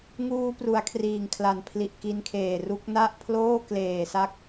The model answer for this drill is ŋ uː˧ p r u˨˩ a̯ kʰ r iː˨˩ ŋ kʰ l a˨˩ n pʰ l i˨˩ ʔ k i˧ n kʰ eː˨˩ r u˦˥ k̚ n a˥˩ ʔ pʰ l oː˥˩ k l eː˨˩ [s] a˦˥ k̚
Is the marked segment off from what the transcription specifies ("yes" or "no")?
no